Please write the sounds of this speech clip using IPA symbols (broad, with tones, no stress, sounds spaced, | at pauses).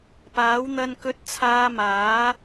p aː˨˥ w n̪ ɐ˧ n k ɵ˧ t̚ t͡sʰ aː˧ m aː˨˥